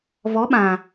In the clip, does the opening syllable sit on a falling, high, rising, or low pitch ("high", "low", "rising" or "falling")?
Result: rising